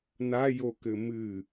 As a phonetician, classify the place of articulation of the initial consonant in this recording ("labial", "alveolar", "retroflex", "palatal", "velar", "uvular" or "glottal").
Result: alveolar